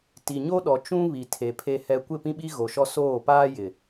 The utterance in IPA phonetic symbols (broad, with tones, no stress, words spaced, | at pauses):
ti˨ɲo˦ ɗɔ˨ t͡ʃũ˦ βi˨tʰe˨ pʰe˦hɛ˦ kʷɪ˦˨pĩ˦ɓi˦ ɣo˨ʃɔ˦ soː˦˨paː˦jɪ˨